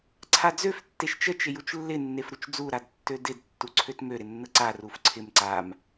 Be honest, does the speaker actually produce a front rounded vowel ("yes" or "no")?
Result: yes